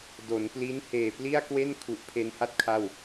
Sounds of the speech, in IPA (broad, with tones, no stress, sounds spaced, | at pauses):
d o˩˦ n p l i˦˥ n h eː˨˩ p l i˥˩ a̯ k w e˥˩ n kʰ u˨˩ ʔ pʰ e˧ n h a˥˩ t̚ kʰ a˥˩ w